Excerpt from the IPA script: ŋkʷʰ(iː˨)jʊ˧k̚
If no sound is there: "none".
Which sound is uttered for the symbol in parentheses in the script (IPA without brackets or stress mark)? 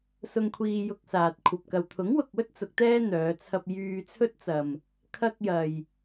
iː˧